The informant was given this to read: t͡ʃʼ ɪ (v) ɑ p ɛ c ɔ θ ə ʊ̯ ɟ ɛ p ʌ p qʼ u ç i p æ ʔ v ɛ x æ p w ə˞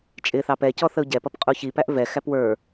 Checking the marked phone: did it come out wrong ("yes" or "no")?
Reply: yes